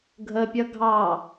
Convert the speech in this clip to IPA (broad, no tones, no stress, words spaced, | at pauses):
ɡʱəpʲʌ ɡʱɑ